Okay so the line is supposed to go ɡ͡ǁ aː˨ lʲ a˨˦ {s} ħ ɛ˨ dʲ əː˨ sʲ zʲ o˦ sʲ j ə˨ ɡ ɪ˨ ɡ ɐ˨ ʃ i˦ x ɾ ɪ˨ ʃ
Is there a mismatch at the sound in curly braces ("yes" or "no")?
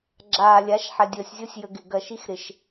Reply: yes